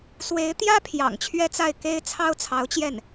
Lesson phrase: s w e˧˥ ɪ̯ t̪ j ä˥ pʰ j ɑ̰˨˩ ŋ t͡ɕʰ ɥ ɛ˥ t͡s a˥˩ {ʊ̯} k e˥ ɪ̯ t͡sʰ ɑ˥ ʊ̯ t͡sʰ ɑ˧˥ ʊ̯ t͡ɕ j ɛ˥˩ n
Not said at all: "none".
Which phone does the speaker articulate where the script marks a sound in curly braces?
ɪ̯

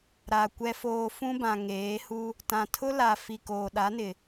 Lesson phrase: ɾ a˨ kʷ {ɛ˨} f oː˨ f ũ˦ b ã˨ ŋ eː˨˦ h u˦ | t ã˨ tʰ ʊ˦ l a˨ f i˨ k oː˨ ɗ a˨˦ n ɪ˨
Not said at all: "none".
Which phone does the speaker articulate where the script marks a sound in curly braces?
ɛ˨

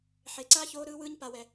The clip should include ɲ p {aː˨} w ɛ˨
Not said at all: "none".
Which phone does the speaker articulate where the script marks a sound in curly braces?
a˨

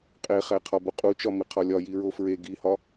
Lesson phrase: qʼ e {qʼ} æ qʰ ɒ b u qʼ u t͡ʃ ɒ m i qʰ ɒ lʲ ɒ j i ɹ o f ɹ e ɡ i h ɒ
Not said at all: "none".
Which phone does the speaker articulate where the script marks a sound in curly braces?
χ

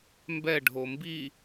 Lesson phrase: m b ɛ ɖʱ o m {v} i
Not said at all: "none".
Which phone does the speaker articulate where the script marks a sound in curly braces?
b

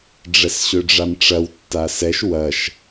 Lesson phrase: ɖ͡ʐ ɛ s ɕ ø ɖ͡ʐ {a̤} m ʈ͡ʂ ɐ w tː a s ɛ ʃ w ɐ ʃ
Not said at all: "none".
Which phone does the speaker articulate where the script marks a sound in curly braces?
a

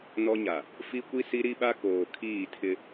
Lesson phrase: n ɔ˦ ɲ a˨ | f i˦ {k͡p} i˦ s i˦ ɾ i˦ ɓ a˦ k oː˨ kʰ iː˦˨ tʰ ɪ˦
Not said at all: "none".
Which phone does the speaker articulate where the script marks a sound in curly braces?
kʷ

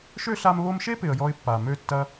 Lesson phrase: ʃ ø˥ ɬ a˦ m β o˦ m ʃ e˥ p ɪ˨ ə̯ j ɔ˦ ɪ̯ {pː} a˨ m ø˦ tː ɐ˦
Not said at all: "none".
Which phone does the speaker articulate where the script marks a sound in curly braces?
pː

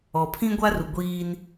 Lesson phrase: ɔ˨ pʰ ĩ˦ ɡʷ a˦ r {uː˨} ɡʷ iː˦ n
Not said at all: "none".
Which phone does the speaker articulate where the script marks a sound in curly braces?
u˨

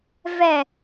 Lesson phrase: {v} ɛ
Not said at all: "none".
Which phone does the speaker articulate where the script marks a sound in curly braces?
v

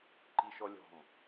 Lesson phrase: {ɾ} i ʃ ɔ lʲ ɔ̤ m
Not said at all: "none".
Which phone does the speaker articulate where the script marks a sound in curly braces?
ǃ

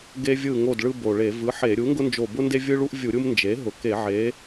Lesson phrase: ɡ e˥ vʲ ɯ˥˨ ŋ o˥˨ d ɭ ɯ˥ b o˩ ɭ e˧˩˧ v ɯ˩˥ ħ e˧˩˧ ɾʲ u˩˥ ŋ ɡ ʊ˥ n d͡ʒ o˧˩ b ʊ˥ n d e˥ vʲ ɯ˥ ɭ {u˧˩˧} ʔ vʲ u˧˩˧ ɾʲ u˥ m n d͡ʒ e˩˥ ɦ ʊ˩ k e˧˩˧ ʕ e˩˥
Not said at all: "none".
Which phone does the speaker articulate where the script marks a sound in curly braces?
u˥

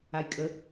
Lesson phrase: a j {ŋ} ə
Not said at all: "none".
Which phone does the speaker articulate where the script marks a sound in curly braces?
kʼ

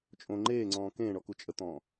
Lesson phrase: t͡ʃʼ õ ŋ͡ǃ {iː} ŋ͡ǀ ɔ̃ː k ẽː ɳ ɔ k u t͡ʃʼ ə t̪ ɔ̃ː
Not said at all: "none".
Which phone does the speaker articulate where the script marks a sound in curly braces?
eː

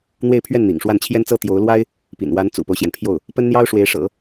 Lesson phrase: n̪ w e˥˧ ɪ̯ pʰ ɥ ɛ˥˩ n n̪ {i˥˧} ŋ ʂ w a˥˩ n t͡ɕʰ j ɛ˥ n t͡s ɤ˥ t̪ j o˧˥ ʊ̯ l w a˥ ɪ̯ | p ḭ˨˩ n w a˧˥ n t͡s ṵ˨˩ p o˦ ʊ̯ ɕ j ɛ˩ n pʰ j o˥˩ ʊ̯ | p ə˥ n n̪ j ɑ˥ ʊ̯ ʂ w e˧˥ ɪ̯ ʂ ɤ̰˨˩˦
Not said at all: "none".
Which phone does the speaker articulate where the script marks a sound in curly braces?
ḭ˨˩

